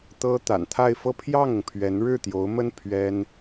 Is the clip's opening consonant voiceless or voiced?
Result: voiceless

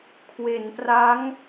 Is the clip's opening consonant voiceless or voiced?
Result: voiceless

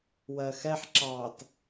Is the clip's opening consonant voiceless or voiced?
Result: voiced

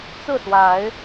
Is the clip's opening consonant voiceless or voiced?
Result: voiceless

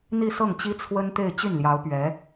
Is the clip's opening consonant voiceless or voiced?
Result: voiced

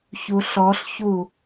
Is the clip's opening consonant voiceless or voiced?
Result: voiceless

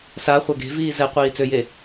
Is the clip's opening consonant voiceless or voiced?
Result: voiceless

